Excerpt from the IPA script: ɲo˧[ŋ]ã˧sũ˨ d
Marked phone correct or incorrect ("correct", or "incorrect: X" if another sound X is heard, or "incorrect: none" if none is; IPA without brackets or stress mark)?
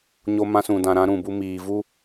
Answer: incorrect: m